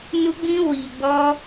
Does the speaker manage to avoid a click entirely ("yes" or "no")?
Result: yes